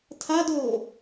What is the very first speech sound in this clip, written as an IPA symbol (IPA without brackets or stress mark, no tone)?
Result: tʰ